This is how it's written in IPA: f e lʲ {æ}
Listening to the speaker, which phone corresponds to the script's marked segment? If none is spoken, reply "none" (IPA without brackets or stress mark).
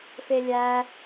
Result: æ